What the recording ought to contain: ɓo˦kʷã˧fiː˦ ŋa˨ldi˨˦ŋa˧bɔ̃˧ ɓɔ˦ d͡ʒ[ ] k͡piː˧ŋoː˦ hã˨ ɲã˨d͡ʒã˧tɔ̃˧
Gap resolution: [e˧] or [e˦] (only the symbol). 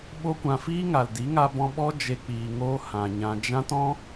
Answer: e˧